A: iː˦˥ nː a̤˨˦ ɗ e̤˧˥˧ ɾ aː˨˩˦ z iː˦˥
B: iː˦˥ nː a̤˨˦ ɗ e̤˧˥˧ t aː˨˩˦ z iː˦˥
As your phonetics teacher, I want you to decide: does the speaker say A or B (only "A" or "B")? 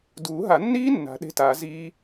B